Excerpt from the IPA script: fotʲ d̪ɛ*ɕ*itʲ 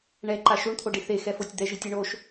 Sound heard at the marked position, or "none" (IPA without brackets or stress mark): ʒ